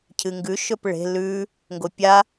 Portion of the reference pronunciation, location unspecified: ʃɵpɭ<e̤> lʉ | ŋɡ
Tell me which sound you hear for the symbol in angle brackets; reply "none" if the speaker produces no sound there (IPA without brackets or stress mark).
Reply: e̤